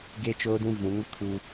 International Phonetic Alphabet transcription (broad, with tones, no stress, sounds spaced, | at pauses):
ɡ e˦ t͡ʃ oː˦ d ũ˦ v ũ˨˦ ŋ ʊ˦ kʰ u˦